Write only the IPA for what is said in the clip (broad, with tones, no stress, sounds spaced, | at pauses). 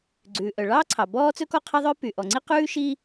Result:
ɡ͡ǀ ʉː˩ ʔ œ˩ ɭ ɑː˥ ǀʰ ɑ˩ b ɔː˥ t͡s ɵ˥ k ɔ˥ qʰ e˥ ðˤ œ˥ p y˩ ʔ ɔ˩ ŋ͡ǀ i˥ q ʉː˥ ʃ i˥